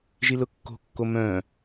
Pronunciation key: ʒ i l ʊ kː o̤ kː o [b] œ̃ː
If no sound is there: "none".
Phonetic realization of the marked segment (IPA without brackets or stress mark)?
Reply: m